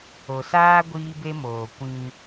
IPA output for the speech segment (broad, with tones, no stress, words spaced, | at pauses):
o˨saː˦ ɡʷiː˦be˦moː˨ kʷĩ˦